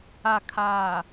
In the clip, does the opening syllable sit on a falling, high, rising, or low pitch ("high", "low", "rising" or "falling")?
low